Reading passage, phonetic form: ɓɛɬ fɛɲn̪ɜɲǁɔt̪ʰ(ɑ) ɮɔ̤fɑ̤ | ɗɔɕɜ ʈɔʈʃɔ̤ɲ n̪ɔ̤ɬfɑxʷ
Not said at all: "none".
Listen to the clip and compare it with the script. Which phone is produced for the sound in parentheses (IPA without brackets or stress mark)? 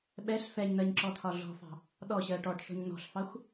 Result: ɒ